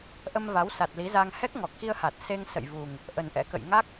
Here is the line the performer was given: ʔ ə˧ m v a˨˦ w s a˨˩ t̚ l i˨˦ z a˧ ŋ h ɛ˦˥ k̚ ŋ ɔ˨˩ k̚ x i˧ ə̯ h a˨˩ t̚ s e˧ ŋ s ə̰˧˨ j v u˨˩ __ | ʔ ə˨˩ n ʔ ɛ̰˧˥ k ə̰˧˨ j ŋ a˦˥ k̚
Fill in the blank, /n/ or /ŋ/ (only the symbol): ŋ